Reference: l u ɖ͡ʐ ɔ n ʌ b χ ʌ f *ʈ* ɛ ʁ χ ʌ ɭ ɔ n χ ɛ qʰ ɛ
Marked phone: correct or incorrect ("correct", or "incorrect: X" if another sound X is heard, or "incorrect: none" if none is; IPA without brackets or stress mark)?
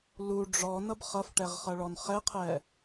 correct